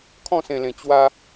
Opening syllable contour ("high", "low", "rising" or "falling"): falling